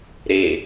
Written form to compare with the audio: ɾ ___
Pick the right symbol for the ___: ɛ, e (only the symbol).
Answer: e